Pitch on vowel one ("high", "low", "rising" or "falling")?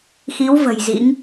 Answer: rising